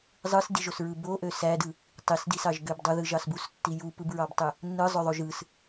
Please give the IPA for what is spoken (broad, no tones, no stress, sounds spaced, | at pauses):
zˤ ɯ s d i ʒ o s ɹ ɯ b o ʔ ø s æ d ɯ | tˤ i s d i s ɑ ʒ ɡ ø b dˤ u ð ɯ ʒ ɑ s b u s tː i j u p ɯ b ɹ ɑ b tˤ ø | nː ɯ zˤ ø ðˤ o ʒ ɯ s